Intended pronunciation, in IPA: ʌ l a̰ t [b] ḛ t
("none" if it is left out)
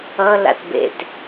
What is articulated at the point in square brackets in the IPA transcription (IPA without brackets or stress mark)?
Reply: b